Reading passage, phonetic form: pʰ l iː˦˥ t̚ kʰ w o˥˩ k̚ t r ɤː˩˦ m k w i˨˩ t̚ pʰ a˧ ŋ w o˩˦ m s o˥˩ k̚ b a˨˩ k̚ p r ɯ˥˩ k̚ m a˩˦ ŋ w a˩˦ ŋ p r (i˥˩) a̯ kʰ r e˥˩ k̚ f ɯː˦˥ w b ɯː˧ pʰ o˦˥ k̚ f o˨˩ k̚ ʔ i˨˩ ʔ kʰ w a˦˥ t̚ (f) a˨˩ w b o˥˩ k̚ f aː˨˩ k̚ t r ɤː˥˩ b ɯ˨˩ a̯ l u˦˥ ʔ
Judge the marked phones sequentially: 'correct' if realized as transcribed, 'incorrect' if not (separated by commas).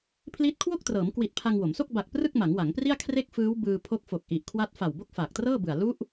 correct, correct